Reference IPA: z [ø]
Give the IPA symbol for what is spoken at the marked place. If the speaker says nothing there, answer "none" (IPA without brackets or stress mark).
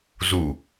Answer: u